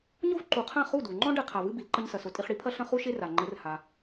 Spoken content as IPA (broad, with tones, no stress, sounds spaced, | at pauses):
ɲ o˥ v ǃ u˩˥ qʰ ã˥˩ χ u˥˩ d u˩ ŋ͡ǃ ɔ̃˥ ɖ ɛ˥ qʰ a˩ v ɨ˥ b i˩ l ǃ ɐ˥ ɲ s ɐ˩ s o˩˥ tʼ i˧ χ ɽ i˩˥ pʰ ɐ˥ ɬ ɐ̃˥ χ u˥ ʃ e˥ r a˩ ŋ͡ǃ ɘ˩˥ r h a˩